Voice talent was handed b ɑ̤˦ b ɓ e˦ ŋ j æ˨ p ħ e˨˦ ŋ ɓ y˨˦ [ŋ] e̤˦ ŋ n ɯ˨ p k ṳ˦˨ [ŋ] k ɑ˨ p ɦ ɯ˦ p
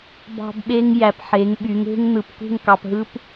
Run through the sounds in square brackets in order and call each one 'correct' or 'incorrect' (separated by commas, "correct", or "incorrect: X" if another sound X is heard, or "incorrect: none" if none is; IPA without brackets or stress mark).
correct, correct